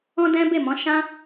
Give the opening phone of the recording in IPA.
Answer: ɔ̃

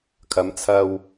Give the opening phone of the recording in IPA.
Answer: kʰ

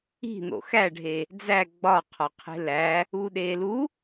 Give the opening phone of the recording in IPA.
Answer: i̤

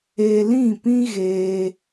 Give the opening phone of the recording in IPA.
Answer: e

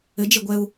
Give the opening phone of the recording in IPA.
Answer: ɘ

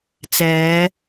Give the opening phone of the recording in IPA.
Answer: t͡s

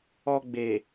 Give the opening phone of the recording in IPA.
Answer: ɔ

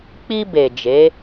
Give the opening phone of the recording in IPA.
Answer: k͡p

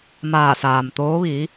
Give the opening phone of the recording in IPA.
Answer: m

